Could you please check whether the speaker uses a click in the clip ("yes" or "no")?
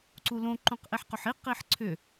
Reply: yes